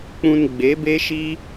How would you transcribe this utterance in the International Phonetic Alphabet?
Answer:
k͡p ũ˧ n ɡ͡b e˨˦ b e˦ ʃ i˦

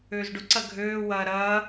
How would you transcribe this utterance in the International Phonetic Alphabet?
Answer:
øː z ɖ ʊ ǀ ɐ ɡʱ øː w ɐː ɾ ɐː

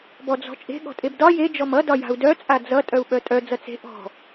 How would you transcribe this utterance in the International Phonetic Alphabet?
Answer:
b ɔ d͡z ɔ̤ t͡ʃʼ e̤ ɠ ɔ̤ tʼ e b d ɒ j e d͡ʒ ɔ m ʌ d ɒ j a̤ u̯ d œ t͡sʼ a d͡z ʌ tʼ œ u̯ ɓ œ tʼ œ d͡z ʌ t͡s e̤ ʔ ɔ̤

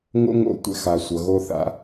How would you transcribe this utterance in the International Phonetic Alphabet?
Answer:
ŋ o̰˦ ŋ o̰˧˩˧ tʷ ɛ̰˦ x a˩˧ sʷ ʌ˩˧ ɣ o˦ θ a̰˨˥

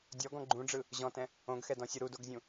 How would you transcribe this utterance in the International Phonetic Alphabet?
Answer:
dʲ ɔ ɡ ɔ̃ ɡ͡ǃ ũ ɖ͡ʐ ɯ | ʑ ɔ̃ t ɛ̃ | õ ɡ x ɛ d ɔ̃ sʲ ɯ ɾ u d o ɡ zʲ ũ

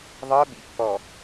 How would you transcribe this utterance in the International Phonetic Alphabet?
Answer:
ðˤ ɤ ɓ ḭ pː ɔ

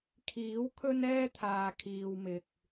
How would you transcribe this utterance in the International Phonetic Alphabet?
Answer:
kʰ iː˨˥ w kʰ ɵ˥ n ɛː˥ t̪ʰ aː˨ kʰ iː˨ w m ɪ˨ k̚

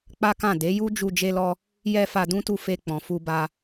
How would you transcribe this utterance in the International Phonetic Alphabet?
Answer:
k͡p a˦ k ã˦˨ d e˨˦ j u˦ d͡ʒ u˧ d͡ʒ e˦ l ɔ˦ | j ɛ˧ f a˧ d ũ˦ t u˧ f e˧ k͡p ɔ̃˨ f u˧ b a˦

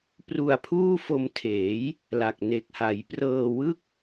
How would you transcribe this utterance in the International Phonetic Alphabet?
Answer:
p r u˧ a̯ pʰ uː˥˩ f o˧ m tʰ eː˩˦ j | l a˨˩ k̚ n e˨˩ k̚ h a˩˦ j p r ɤː˧ w ɯ˥˩ k̚

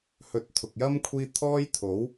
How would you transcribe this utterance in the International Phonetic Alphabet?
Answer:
h ɵ˨˥ t̚ t̪ʰ ʊ˨ k̚ j ɐ˥ m kʷʰ iː˥ t̪ʰ ɔː˥ j t̪ʰ o˨˥ w

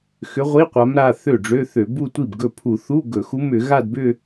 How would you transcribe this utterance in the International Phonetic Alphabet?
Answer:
x ʏ˧˥ ʁʷ i˧˥˧ qʷ a˧˥ m ɾ a˩˧˩ θ ø˥˩ ɖ͡ʐ ø˧˥˧ θ ø˧˩˧ b u˥˧ tʷ i˥˩ b ɡ ɵ˥˩ pʰ u˧˩˧ θ u˧˥˧ ɡ ɵ˧˩˧ x u˧˥ m ʏ˧˩˧ ɣ a˥˧ d b ʏ˥˧

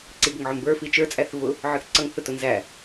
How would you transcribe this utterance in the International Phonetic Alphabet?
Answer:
ǀ i ɡ ə ŋ ʕ ʊ m b ə˞ f i t͡ʃ ə˞ t͡sʼ æ θ v ʊ | ʕ ə˞ θ ǀ ʌ ŋ θ ʊ t ʊ n z æ

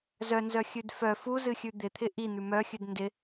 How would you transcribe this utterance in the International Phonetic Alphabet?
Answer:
z œ n z œ xʲ ʉ d f œ f u z ɨ xʲ ʉ d̪ ɪ t̪ʰ ɪ ʔ i n̪ ʉ m œ xʲ ʉ d n d ɪ

